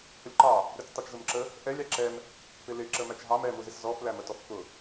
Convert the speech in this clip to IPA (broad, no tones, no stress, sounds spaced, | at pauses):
h ʊ lʲ ǃ ɑ | ɾʲ ɔ t͡s tˤ ɛ t͡ʃ z ʊ m ǁ ə | ʔ ɛ lʲ ɑ ǁ ɛ m | p ɪ l ɪ ǁ ə m æ t͡ʃ ɦ ɑ m ɛ m u z ɪ s z ɔ f l æ m ə t ɔ f k ʊ